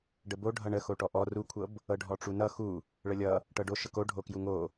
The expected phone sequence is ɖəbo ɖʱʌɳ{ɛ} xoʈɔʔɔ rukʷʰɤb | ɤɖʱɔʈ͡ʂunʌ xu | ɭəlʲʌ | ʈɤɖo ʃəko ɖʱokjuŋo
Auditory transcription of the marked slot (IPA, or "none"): ə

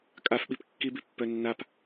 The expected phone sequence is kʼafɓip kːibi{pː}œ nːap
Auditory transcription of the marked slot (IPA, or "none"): pː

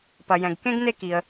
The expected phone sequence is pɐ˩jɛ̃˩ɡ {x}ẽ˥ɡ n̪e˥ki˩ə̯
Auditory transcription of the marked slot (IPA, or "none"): k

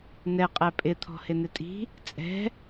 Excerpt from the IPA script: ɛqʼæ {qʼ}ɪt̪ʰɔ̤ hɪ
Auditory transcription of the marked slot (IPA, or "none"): pʼ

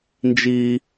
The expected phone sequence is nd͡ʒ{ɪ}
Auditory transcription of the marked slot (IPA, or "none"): i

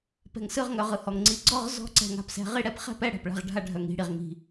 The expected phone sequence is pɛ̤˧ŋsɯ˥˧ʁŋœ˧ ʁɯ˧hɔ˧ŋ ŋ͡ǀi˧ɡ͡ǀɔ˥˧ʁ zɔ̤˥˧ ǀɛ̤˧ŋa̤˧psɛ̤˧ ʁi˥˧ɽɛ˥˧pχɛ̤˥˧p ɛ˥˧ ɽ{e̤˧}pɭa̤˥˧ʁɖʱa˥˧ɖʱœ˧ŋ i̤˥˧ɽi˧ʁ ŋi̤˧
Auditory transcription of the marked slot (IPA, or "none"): ɛ̤˧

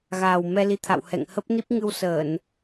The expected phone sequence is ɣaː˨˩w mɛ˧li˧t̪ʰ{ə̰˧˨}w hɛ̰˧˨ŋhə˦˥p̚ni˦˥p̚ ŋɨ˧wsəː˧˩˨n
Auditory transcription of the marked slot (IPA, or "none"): a̰˧˨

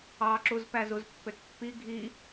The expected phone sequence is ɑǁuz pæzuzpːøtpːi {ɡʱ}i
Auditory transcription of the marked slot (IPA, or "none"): ɡʱ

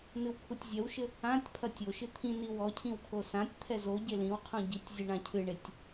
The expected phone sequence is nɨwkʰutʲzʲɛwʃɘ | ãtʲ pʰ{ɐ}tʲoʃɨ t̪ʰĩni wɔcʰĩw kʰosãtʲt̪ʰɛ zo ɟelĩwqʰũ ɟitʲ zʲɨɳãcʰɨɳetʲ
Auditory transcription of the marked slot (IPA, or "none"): ɐ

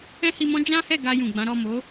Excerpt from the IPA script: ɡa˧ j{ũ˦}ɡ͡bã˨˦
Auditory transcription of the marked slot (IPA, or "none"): ũ˨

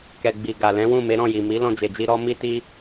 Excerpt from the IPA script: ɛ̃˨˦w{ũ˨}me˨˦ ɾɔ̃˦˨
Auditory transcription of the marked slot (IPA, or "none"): ũ˦˨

